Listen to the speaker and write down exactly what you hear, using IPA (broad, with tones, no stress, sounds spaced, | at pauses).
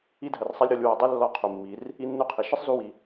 i˧ dʱ ɜ˩ r sˤ ɛ˧ lʲ ɾ ɔ˩˧ lʲ w e˩˧ dˤ i˥ lː ɔ˧˥ qʰ u˩ mː i˩˧ r | i˧ nː u˧˥ qʰ i˩ ʃ ɨ˥ sˤ z u˧ w i˩